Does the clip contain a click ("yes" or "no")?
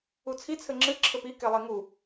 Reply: yes